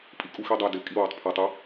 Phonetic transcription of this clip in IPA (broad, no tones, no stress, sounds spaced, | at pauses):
pʼ i kʼ u x i dˤ æ d ɪ kʼ i w ɑ tˤ pʰ æ tˤ ɪ